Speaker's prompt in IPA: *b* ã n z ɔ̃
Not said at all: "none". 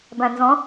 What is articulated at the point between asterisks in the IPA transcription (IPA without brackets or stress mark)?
b